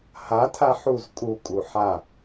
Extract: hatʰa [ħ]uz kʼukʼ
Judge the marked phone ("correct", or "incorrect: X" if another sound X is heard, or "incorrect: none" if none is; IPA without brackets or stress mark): correct